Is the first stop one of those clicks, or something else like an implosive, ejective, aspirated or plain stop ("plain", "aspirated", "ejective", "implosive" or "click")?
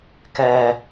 plain